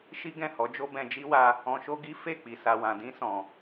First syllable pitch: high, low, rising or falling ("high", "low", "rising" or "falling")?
high